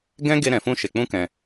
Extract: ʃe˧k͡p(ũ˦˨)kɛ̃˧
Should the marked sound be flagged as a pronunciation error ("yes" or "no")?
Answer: yes